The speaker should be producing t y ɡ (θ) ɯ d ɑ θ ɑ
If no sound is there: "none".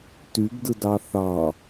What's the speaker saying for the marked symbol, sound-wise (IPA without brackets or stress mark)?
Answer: d